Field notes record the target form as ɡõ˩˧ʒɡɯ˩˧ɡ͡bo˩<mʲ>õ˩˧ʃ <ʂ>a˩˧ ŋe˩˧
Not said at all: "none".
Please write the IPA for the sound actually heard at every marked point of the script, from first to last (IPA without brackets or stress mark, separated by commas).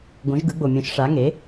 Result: mʲ, ʂ